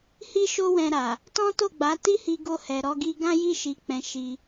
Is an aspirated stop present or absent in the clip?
absent